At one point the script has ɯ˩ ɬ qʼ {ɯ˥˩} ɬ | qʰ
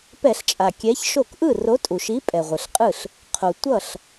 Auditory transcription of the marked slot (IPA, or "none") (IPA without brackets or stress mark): ɯ˥˩